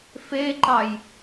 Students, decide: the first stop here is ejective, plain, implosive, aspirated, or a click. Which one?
click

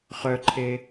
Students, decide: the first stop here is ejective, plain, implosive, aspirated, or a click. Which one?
click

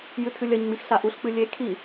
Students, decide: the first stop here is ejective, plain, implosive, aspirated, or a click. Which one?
aspirated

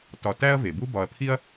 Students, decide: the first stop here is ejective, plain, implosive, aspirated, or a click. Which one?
plain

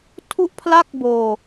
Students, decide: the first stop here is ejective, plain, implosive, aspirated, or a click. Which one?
aspirated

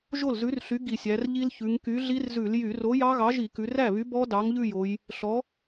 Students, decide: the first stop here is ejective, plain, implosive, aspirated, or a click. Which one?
plain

